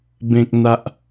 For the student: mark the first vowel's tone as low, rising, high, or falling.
low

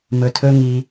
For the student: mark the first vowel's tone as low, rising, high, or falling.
low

